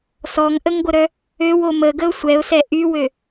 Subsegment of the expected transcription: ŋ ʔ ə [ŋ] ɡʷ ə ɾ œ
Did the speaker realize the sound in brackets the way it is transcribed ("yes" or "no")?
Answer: yes